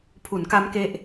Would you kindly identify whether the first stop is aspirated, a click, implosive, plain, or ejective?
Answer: aspirated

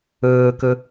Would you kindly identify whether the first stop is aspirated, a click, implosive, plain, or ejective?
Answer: plain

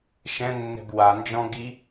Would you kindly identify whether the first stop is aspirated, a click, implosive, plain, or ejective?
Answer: plain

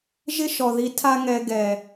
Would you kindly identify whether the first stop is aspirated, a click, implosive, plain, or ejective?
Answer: aspirated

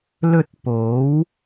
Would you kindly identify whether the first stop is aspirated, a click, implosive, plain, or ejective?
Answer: plain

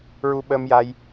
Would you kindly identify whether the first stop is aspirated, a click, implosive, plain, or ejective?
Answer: implosive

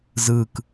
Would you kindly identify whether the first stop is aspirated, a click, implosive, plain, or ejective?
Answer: plain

